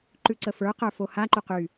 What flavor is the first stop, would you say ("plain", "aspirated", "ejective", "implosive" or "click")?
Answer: click